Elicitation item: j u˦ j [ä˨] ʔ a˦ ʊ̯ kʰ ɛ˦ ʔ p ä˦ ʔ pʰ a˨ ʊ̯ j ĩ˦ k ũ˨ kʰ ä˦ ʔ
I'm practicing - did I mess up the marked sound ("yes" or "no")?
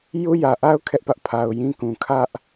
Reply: no